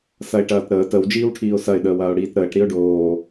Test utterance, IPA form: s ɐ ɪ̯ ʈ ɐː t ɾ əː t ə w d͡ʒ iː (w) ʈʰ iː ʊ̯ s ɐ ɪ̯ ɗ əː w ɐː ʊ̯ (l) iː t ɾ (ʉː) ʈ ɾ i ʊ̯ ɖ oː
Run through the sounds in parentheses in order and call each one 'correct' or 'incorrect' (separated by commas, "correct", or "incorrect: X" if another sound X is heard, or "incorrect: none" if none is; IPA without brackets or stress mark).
correct, incorrect: ɽ, incorrect: əː